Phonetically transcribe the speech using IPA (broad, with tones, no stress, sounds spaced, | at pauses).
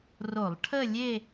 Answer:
r o˧˩˧ lˠ ʈʰ ə˥˧ lʲ e˥˧